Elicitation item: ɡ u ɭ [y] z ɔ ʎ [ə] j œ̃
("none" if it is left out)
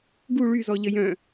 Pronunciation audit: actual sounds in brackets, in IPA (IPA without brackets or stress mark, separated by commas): y, ə